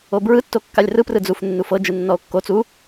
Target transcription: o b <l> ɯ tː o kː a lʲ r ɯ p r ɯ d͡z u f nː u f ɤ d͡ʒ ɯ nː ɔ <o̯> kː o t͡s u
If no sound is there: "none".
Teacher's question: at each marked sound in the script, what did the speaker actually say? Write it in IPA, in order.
ɹ, o̯

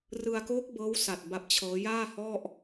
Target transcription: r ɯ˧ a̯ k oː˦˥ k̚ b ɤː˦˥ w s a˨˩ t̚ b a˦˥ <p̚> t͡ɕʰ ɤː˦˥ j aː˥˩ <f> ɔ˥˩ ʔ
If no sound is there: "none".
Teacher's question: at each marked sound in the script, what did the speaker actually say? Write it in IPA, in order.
p̚, h

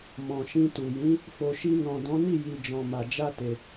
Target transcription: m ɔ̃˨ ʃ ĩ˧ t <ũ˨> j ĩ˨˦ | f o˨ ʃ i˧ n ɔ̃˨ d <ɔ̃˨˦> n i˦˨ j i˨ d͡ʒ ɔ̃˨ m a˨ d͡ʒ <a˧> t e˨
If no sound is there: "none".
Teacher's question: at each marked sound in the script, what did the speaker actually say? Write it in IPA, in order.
u˨, ɔ̃˨˦, a˧

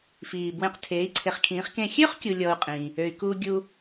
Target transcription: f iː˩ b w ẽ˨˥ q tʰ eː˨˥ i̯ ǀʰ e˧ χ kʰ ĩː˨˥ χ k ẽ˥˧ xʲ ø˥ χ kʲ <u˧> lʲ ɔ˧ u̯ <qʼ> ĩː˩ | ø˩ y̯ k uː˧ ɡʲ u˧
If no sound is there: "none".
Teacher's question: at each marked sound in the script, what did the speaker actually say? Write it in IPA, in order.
u˧, qʼ

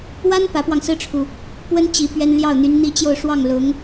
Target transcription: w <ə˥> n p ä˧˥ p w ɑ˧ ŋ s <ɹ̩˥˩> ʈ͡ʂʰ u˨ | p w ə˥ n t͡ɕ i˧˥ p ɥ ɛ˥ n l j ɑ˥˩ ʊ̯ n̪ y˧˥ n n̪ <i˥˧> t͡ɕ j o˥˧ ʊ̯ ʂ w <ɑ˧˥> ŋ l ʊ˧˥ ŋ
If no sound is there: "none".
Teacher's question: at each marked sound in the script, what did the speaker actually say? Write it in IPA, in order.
a˥, ɹ̩˥, i˥˧, ɑ˥˩

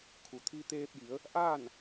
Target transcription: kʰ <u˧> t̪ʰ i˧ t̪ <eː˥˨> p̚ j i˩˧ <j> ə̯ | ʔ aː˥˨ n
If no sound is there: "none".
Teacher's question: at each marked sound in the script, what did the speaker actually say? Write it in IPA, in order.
u˩, eː˧, none

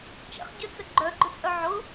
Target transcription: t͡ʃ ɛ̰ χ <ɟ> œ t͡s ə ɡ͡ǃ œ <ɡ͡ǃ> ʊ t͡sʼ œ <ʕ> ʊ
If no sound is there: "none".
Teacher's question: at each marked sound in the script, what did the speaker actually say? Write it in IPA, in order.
ɟ, ɡ͡ǃ, ʕ

